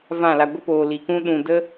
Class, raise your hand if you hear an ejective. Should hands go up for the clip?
no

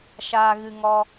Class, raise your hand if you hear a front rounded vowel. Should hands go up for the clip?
no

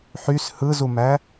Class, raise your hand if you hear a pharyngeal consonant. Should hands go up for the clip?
yes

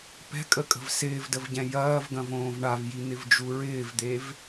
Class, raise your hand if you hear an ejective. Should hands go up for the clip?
yes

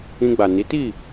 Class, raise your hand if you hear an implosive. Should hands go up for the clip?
no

